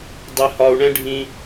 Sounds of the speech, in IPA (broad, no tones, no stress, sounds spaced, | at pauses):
dˤ ɪ h ɒ u̯ ɳ ɛ̃ ɖʱ ĩ